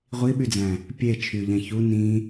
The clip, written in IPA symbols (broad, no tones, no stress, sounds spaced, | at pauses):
ʁʷ i ɓ y d͡z æ̃ | pʲ e t͡ʃʰ y ʎ æ̃ ç u n ĩ